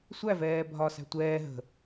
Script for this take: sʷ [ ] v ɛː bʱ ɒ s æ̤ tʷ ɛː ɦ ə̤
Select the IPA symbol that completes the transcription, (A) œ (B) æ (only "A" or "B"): B